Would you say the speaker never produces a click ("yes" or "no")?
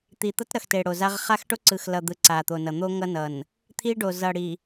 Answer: no